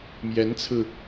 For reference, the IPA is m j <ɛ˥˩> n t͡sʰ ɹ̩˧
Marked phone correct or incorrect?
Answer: incorrect